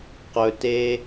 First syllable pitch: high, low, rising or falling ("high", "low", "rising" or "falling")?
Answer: high